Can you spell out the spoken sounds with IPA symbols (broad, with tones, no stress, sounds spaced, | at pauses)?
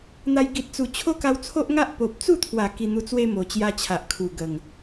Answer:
n̪ a˧ j ɡ i˨ t̚ t͡s u˨˩ t͡ɕʰ o˦ k a˧ w t͡sʰ o˦ ʔ ŋ a˦ ʔ p o˨ p̚ t͡s u˥˧ t̪ʰ w a˨˩ k i˧ n̪ u˧ t͡s w e˦ m o˨˩ t͡ɕ j a˦ t͡ɕʰ a˨ ʔ kʰ u˨˩ ɡ ə˨˩ ŋ